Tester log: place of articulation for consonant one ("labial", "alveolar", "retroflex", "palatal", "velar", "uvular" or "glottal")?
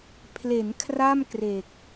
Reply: labial